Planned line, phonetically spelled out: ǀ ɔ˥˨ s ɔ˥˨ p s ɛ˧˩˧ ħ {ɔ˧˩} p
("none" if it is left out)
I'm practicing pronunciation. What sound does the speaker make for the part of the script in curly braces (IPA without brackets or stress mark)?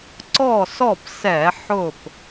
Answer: ʊ˧˩